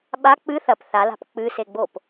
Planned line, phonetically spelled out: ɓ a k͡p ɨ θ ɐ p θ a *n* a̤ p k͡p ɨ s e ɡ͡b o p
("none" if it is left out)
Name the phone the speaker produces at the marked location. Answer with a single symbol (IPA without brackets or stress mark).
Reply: l